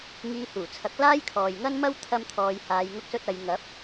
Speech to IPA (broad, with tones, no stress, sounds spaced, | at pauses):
ŋ iː˧ h uː˨˩ t͡sʰ ɐ˨˥ k̚ l aː˥ j kʰ ɔː˨ j ŋ ɐ˥ n m ɐ˥ w t̪ʰ ɐ˥ m t̪ʰ ɔː˧ j h aː˧ j ŋ ʊ˥ k̚ s ɵ˥ t̚ ɐ˨˧ j ŋ ɐ˨˥ p̚